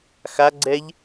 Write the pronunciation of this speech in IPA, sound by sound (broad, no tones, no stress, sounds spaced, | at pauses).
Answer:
x a ɡ͡ǀ ɛ ʎ